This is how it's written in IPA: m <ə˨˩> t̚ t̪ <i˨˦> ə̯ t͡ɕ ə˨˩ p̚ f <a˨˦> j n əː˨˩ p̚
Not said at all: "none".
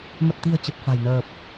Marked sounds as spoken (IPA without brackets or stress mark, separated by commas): ə˨˩, i̤˨˩, a̤˨˩